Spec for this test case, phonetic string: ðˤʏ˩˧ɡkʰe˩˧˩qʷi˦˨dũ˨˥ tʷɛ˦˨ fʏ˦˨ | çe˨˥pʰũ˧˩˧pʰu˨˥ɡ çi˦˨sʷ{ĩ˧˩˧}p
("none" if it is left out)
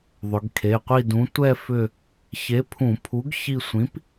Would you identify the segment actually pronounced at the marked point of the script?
ĩ˨˥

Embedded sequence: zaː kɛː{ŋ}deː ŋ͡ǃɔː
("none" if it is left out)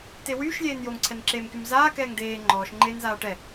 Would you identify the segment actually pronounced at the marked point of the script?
ŋ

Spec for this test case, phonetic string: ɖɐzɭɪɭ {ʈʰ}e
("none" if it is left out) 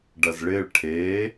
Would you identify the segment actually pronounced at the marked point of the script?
ʈʰ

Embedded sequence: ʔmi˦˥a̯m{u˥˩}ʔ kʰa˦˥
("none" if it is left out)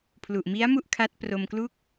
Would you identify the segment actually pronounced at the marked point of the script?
u˥˩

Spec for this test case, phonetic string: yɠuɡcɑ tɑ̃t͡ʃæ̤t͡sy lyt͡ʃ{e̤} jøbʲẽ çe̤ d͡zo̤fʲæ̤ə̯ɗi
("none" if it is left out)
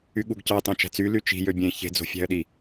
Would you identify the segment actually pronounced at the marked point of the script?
i̤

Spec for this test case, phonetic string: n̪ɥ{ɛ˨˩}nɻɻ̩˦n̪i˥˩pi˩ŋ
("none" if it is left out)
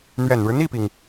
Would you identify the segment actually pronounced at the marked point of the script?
ɛ˨˩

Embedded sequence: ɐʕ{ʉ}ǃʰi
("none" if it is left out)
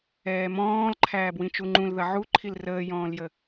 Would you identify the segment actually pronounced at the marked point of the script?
u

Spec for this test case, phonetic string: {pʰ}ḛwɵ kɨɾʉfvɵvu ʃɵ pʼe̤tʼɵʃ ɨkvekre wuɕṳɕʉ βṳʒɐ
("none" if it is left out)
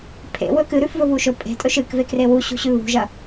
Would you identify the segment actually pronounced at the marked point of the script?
pʰ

